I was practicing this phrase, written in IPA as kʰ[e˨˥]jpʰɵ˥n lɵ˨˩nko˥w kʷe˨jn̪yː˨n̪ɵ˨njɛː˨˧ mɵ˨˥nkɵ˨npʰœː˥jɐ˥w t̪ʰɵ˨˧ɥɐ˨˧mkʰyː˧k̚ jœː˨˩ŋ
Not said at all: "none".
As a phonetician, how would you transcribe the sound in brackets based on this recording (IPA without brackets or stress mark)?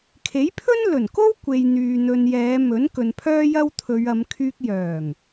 e˨˥